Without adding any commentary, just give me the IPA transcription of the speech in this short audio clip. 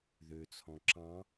ð ø t͡sʰ ɔ̃ ǁ ɑ̃

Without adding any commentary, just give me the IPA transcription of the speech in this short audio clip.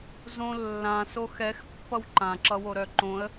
z õ lː ã s o x ɛ x pː ʌ w ǃ ã ǁ ʌ w o ɾ œ ǃ õ ə̯

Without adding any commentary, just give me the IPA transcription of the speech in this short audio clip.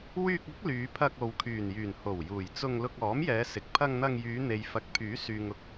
w yː˧ k̚ ʊ˨˥ k̚ l yː˨˧ pʰ ɐ˧ k̚ o˨ w kʰ yː˨˩ n j yː˨˩ n h o˨˩ w j uː˨˩ j t͡s ʊ˧ ŋ l ʊ˧ k̚ ɔː˨˥ m j ɛː˨˧ s ɪ˨ k̚ pʰ ɐ˧ ŋ n̪ ɐ˧ ŋ j yː˨˧ n̪ e˨ j f ɐ˨˥ k̚ pʰ yː˨˥ s yː˨ ŋ ʊ˧ k̚

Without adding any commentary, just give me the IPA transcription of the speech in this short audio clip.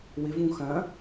w ɪ v ũ x ɐ̃

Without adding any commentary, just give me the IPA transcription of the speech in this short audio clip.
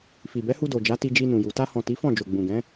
f i˨ b ɛ˨˦ h u˧ d o˨ d͡ʒ a˨˦ t i˧ d͡ʒ i˧ n ũ˨ j u˨ t a˧ h ɔ̃˨ t i˨˦ f ɔ̃˦˨ d͡ʒ o˨ ɡ͡b ũ˨ ɡ ɛ̃˨˦

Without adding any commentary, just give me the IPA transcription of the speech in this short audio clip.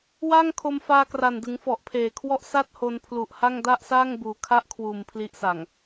w a˥˩ ŋ kʰ o˧ m f aː˧ k r a˨˩ n d ɯ˩˦ ŋ f ɔ˨˩ ʔ pʰ eː˨˩ kʰ w ɔ˥˩ ʔ s a˥˩ t̚ h o˧ n pʰ l u˨˩ ʔ h a˥˩ ŋ d a˥˩ ʔ s aː˥˩ ŋ b uː˩˦ kʰ a˥˩ ʔ kʰ w uː˨˩ m pʰ l i˦˥ ʔ s a˨˩ ŋ

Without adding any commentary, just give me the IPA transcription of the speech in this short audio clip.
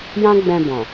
j ã˦ ɡ͡b ɛ̃˧ b ɔ̃˨

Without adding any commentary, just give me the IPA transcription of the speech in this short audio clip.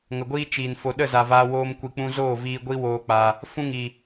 ŋ ə˨ ɡʷ iː˦ t͡ʃ i˨ n f o˨ ɗ ə˦˨ z a˨ v aː˧ w oː˧ m kʷ i˨ k͡p ũ˧ z oː˦˨ v iː˧ ɡʷ i˦ w oː˦ k͡p a˧ | f ũ˦ ŋ i˨

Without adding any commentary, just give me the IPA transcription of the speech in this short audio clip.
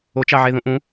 o t͡ʃ ɑ ʕ e ð ũ ʔ ũ

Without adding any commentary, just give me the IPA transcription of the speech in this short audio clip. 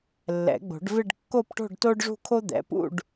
lː ɛ̰˨˩˦ ɡ͡b o̤˨˩˦ ɖ v ɪ˥˧ ɖ kː o˥˧ p ʈ o̤˥˧ ɖ t o˥ ɖ ʐ ṳ˥˧ kʰ o˥ d̪ ɛ̰˩˥ p ṵ˥˧ ɖ

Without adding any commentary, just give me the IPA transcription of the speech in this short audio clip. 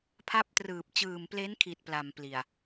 pʰ a˦˥ p̚ t r ɯː˨˩ p̚ t͡ɕ ɯː˨˩ m p l e˦˥ n kʰ i˨˩ t̚ p l a˨˩ m p l i˨˩ a̯

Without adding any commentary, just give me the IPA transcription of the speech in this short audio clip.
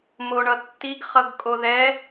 m o ɳ ʌ tː i ɡ χ ʌ ɡ kʼ o ð ɛ

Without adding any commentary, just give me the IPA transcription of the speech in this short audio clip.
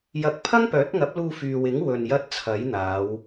j ɐ˨˥ k̚ pʰ ɐ˥ ŋ p œː˨˥ t̚ ŋ ɐ˨˥ p̚ l uː˧ f yː˨ w ɪ˨˥ ŋ w ɵ˨ n j ɐ˧ t̚ t͡sʰ ɐ˨˥ j n̪ aː˨˧ w

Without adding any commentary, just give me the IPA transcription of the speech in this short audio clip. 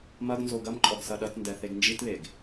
m ɐ ɡ n z o ɡ ɐ m ǃʼ ɔ ɡ s ɐ ɗ ɐ t n d ɛ θ e ɡ n d͡ʒ i t β e ɡ

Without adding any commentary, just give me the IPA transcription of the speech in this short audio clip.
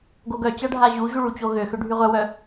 ɡ o ɡ œ t͡ɕ a ɖʱ a ʑ u ʑ u ɭ u t͡ɕ o ɣ ø x ø ɖʱ y ʁʷ œ w œ

